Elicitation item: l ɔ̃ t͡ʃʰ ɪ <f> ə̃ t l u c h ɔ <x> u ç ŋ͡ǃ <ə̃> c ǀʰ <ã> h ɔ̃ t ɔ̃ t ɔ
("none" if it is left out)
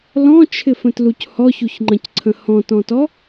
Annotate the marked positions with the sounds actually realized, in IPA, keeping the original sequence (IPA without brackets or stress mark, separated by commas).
f, ç, ə̃, ə̃